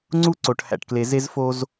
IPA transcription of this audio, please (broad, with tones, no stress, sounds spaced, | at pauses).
ŋ͡ǀ u˦ ǀ o˨ ʈ h æ̰˨ ʈ k l e˨ z e˦ z f o˦ z